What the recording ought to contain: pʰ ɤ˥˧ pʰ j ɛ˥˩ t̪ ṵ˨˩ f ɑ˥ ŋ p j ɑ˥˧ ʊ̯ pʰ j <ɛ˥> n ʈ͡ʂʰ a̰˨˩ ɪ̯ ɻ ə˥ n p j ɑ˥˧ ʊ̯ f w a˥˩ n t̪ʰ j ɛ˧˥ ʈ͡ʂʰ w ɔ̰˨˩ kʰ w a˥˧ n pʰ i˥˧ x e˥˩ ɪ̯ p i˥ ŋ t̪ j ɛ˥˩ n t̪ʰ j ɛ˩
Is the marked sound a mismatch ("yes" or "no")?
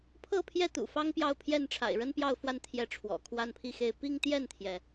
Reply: yes